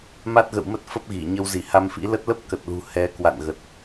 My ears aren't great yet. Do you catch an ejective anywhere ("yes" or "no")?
no